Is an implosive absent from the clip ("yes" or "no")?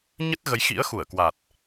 yes